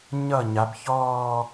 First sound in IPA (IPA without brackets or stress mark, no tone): ɲ